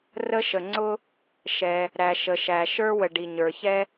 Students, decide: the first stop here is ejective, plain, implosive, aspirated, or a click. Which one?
click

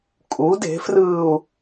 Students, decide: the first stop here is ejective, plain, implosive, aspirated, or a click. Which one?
ejective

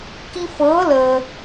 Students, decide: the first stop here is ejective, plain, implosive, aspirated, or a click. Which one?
plain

